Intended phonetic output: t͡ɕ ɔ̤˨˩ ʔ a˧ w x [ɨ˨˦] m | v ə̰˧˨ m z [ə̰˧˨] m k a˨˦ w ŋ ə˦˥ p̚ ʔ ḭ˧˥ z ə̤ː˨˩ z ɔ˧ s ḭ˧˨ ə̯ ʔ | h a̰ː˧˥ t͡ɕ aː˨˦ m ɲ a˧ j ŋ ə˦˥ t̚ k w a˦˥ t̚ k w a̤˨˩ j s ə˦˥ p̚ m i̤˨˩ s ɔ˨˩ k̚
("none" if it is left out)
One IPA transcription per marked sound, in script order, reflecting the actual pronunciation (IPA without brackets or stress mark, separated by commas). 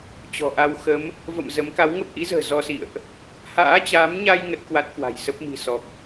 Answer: ə˨˦, ə˨˦